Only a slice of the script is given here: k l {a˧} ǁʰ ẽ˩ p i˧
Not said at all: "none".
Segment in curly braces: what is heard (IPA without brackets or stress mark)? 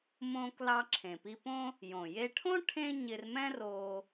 ɑ˧